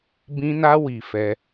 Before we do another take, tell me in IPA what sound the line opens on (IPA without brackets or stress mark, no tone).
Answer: b